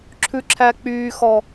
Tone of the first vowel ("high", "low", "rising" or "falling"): high